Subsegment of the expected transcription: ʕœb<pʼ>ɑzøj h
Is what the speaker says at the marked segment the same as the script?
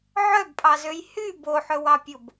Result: yes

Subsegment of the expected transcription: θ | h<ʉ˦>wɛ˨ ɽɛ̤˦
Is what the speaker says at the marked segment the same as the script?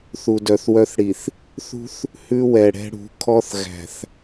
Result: yes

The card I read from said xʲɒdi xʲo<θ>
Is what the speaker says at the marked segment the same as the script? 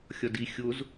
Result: no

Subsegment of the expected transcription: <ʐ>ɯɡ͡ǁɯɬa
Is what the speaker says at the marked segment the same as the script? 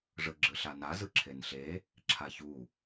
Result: yes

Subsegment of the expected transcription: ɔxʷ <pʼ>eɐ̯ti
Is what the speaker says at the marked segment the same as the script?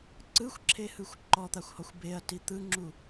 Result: no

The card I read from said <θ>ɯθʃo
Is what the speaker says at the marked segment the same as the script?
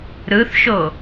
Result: no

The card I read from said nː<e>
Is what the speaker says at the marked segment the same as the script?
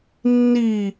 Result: no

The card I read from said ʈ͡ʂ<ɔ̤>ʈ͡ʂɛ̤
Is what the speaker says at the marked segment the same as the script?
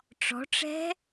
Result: yes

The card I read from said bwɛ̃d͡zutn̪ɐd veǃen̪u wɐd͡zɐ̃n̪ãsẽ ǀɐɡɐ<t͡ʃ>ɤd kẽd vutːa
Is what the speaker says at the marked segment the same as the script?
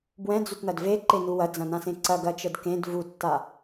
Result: yes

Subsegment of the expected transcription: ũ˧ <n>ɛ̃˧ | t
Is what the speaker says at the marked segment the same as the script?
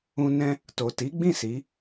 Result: yes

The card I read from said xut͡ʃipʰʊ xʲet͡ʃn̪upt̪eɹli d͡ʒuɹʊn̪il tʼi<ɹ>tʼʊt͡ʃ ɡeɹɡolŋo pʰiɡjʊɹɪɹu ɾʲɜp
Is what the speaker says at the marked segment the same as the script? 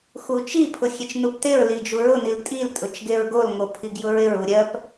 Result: no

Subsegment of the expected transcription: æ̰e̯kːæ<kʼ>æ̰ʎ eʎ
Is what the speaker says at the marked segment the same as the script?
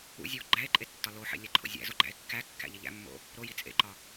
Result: no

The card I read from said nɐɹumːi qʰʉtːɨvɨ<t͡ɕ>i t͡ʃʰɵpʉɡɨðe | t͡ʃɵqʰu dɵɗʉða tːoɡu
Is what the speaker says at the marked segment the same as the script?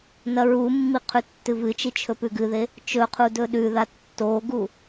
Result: no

